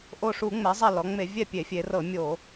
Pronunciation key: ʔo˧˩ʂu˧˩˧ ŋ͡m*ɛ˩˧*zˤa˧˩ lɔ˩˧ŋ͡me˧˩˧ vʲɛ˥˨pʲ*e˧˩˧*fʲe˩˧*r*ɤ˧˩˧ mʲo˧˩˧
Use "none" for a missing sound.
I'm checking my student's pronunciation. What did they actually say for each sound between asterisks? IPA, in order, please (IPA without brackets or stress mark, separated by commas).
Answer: ɛ˩˧, e˧˩˧, r